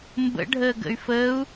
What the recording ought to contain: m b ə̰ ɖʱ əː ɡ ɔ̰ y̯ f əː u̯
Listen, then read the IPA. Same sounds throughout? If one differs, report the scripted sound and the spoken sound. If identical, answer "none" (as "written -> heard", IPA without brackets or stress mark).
ɔ̰ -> ə̰